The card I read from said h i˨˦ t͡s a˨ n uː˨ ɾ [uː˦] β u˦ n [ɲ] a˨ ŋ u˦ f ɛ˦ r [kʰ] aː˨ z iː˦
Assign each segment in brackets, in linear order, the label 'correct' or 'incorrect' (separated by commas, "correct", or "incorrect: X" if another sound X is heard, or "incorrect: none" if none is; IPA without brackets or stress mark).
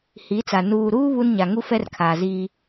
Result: correct, correct, correct